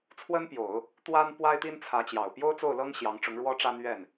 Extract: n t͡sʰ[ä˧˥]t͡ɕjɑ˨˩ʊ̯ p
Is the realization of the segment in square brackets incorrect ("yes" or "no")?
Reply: no